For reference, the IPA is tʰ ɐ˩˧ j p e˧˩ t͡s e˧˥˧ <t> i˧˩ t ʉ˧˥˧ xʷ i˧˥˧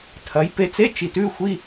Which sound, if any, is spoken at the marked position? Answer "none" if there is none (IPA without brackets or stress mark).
t͡ʃ